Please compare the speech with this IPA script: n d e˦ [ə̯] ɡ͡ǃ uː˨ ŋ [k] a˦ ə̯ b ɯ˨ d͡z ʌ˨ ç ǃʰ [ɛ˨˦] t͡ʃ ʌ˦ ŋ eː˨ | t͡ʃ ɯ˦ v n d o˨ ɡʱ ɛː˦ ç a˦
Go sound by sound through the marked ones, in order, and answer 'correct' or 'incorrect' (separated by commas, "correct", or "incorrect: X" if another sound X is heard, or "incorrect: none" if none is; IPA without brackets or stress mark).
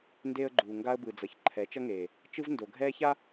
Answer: correct, incorrect: ɡ, correct